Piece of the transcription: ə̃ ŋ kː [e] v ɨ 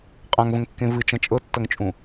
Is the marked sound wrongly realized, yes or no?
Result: yes